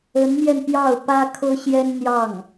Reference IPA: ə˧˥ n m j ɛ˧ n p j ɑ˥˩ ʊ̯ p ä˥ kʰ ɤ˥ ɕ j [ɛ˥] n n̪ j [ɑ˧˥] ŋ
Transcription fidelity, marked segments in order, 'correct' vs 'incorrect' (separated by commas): correct, incorrect